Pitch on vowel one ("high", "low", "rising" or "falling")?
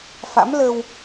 rising